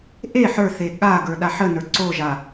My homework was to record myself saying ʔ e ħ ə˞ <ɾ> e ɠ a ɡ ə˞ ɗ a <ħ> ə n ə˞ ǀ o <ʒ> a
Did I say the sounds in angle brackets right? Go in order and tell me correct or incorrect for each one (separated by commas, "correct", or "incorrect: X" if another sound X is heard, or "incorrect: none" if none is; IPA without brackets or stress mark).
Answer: incorrect: θ, correct, correct